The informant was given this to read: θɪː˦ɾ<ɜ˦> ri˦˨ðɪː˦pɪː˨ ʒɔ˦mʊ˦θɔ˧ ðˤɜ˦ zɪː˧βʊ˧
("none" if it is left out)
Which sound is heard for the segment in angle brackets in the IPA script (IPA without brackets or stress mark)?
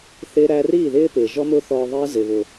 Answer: æ˦